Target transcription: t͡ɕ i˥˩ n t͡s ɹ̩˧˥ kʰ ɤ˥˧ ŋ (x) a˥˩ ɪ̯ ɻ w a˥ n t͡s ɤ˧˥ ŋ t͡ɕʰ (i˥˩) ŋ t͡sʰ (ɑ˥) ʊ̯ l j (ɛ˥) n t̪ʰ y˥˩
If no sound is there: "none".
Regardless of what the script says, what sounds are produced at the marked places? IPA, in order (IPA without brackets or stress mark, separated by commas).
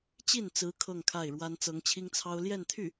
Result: kʰ, i˥, ɑ˥, ɛ˥˧